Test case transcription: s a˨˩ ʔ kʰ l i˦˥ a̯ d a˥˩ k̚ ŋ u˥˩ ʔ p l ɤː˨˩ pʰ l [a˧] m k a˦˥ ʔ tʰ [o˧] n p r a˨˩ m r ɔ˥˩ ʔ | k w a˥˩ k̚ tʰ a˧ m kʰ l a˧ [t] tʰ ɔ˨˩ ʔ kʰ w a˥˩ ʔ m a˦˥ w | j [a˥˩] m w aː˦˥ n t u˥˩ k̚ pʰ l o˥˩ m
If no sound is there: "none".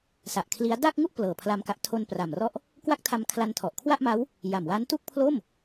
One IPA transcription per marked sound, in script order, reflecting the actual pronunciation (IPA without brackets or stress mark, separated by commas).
a˧, o˧, n, a˨˩